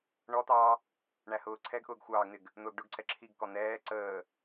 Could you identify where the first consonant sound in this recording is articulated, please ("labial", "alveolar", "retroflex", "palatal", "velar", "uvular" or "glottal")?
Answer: retroflex